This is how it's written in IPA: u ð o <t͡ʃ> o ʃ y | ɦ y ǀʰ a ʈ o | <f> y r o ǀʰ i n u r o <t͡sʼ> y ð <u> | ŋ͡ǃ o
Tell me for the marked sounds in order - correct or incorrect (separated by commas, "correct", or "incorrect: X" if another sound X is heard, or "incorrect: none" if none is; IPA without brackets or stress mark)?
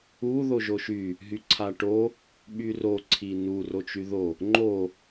incorrect: ʒ, incorrect: ɓ, incorrect: t͡ʃ, incorrect: o